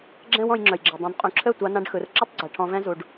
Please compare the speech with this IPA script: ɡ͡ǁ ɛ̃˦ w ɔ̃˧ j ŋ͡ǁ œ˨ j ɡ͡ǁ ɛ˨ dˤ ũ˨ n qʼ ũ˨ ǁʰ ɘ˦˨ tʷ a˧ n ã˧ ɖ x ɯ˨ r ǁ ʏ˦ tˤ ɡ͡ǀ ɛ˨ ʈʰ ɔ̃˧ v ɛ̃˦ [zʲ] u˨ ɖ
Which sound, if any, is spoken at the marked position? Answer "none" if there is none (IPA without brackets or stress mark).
z